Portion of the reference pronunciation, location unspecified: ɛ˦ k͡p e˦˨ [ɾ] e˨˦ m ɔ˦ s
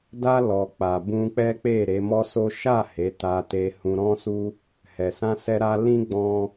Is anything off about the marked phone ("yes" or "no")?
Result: no